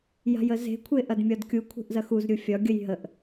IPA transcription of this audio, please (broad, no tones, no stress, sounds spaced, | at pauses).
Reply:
j a̤ j ə z e̤ kʷʰ e ʔ ɐ d mʲ ɒ d kʲ u kʷʰ e̤ ʔ z ɐ x u z ɾʲ u fʲ ɒ ɡʲ ə j ɦ ə ʔ